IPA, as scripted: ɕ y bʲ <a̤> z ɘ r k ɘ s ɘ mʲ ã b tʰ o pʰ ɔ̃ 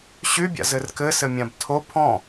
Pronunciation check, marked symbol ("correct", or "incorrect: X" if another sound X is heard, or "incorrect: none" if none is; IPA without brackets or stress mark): incorrect: a̰